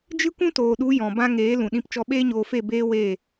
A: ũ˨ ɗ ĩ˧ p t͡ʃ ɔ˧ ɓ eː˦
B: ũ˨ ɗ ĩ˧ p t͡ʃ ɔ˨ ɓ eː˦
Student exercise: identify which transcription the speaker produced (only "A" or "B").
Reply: A